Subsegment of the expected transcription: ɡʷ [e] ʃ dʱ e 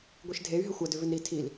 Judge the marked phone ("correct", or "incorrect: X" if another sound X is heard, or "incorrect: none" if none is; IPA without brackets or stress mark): incorrect: i